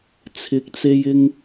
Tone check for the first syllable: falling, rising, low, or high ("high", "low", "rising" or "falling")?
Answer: rising